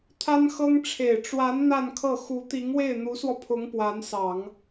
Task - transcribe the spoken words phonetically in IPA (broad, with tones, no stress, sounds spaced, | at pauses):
t̪ʰ a˥ n x ɤ˥ ŋ ʈ͡ʂʰ e˨˩ ɪ̯ ʈ͡ʂ w a˧˥ n n̪ a˥˧ n kʰ ɤ˥˩ x u˧˥ t̪ i˧˥ ŋ w e˥˩ ɪ̯ n̪ u˧˥ s w ɔ˧ pʰ ʊ˧˥ ŋ p w a˧˥ n s ɑ˨˩˦ ŋ